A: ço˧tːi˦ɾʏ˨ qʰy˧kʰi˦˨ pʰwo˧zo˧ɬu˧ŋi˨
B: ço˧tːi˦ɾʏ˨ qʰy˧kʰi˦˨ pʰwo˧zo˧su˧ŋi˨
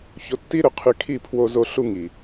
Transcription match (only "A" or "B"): A